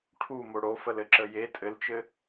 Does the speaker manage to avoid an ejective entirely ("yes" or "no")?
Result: no